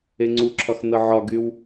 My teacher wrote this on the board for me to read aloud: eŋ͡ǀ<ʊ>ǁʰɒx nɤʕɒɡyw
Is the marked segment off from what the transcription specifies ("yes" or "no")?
yes